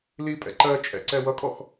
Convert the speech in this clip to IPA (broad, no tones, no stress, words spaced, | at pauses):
lipʼɛ̰ ǃɜt͡ʃʼɛ̰ ǀɛwʌkʼɔx